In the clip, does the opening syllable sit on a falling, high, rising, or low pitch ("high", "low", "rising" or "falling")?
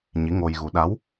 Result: rising